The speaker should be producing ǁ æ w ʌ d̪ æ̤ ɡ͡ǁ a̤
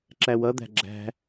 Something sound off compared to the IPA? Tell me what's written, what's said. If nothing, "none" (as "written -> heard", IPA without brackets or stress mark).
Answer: a̤ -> æ̤